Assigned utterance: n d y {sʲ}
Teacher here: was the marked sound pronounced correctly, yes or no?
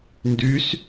no